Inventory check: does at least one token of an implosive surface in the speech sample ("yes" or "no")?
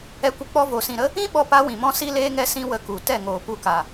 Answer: yes